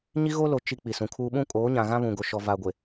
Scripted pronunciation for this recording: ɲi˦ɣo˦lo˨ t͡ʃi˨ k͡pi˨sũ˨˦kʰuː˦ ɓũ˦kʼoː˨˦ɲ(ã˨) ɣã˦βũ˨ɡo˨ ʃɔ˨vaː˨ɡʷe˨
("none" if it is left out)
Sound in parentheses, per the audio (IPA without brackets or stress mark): ã˨